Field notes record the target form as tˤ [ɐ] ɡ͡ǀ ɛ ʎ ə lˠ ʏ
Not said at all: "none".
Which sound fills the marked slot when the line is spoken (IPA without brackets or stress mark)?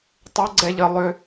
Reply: ə